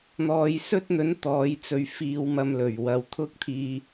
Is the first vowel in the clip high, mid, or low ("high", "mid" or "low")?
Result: mid